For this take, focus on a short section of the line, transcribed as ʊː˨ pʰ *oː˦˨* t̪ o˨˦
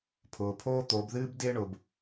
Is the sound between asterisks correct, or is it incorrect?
incorrect